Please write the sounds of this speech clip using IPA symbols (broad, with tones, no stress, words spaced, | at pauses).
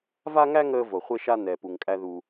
va˥ŋæ˥ ŋəː˧vo˩χʷe˧ʃa˧ nɛː˩pu˩ŋkʼæ˧ ðu˩